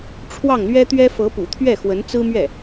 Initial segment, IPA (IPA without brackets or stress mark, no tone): ʈ͡ʂʰ